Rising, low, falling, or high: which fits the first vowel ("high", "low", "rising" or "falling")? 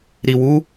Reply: low